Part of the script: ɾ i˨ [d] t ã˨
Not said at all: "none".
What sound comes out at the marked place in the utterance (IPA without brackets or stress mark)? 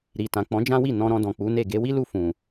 none